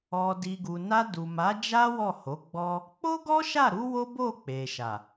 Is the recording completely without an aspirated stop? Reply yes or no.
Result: yes